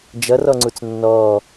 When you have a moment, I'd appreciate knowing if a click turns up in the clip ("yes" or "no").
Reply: yes